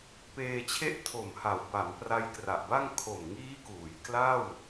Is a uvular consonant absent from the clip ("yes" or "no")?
yes